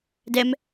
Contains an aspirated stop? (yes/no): no